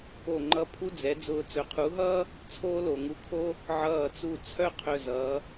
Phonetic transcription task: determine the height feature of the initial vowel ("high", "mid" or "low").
mid